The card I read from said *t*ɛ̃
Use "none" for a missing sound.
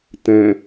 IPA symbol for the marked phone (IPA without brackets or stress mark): t